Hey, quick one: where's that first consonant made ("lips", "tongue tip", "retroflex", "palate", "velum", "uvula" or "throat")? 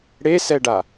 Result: retroflex